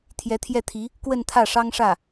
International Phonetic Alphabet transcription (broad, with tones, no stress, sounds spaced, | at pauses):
t̪ʰ j ɛ˧˥ t̪ʰ j ɛ˥˩ t̪ʰ i˧˥ | k w ə˥˧ n t̪ʰ ä˥˩ ʂ ɑ˥ ŋ ʂ ä˥˩